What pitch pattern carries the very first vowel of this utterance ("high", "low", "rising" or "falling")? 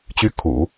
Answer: high